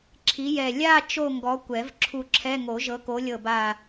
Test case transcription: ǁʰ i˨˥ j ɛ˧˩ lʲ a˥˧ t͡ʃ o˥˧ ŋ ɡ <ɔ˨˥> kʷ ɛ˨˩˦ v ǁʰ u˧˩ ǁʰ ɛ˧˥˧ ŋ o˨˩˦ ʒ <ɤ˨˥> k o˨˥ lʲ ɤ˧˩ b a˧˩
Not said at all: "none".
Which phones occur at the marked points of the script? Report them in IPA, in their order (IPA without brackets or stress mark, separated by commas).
ɔ˨˥, ɤ˨˥